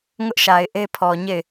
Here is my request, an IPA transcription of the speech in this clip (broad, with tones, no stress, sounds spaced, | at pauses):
ŋ ʊ˦ ʔ ʃ a˨ ɪ̯ ʔ e˦ pʰ ɔ˨ ɲ e˦˨ ɪ̯